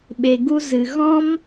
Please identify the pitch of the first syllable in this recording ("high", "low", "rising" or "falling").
low